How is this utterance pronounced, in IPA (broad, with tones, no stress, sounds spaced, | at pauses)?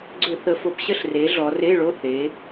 ɡ͡ǀ ʏ˧˩˧ θ ə˩˧ f o˩˧ p ɕ ə˥˨ ɬ r e˩˧ ɮ ɔ˩˧ r e˧˥˧ ɭ o˧˥˧ θ e˩˧